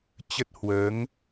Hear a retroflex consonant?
no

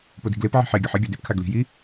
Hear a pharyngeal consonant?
yes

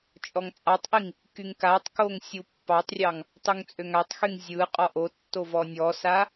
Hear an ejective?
yes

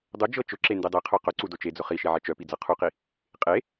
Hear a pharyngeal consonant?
yes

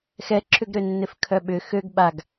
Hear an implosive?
yes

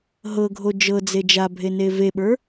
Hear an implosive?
yes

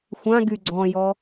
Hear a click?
yes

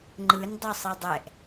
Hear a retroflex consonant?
no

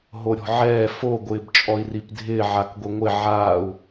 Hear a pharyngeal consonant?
yes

